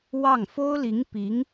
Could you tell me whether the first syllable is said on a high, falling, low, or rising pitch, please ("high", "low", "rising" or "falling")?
falling